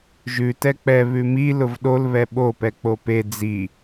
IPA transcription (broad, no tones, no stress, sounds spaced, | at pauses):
ʒ ʉ t ɛ k͡p ɛ β ʉ m i l ʊ v ɗ o l β ɛ ɓ o p ɛ k͡p o p e d͡z i